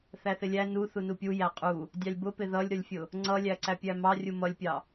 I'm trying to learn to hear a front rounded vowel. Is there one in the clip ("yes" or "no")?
no